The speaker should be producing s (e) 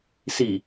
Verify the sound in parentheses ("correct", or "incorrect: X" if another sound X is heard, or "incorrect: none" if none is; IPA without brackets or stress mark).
incorrect: i